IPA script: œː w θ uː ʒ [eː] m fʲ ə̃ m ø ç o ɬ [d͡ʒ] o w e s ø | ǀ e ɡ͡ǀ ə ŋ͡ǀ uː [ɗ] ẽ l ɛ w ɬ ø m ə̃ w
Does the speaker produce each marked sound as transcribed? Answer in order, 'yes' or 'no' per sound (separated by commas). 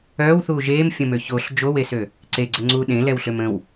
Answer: yes, yes, yes